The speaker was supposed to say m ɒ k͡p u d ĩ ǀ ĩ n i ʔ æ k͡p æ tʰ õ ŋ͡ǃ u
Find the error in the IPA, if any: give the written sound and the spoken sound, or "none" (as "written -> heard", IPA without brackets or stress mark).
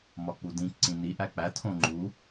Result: none